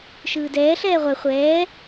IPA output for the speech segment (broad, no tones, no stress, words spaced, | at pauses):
ʃɯːdɛː ɬɛːʁʷɛ χʷɛː